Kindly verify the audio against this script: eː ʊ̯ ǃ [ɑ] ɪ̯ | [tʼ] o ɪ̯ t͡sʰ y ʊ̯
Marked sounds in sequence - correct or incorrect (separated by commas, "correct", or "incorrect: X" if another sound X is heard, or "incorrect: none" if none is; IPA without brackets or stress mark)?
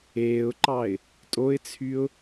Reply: correct, correct